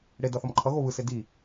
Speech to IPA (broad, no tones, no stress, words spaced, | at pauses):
ɽedʌ θʌmǃʰʌɣo βɯse di